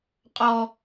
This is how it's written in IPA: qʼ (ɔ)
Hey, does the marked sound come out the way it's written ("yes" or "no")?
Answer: yes